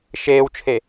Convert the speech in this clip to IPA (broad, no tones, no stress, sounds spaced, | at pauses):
ʃ eː w t͡ʃʰ e